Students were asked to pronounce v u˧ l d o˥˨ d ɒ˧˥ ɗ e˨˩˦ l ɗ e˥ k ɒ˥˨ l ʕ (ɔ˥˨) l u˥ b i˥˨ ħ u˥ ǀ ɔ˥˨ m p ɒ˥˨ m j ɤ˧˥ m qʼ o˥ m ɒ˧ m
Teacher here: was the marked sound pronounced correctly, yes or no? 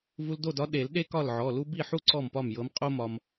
no